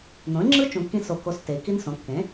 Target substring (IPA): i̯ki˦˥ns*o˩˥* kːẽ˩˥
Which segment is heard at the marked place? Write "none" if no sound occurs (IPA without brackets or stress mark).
õ˩˥